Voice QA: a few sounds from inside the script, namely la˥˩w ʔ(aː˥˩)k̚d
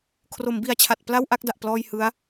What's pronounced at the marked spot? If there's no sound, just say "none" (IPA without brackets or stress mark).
a˥˩